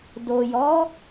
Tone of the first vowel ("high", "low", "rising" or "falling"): low